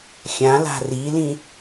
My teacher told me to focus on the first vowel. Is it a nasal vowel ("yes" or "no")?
yes